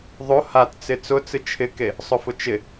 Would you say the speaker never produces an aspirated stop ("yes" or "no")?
no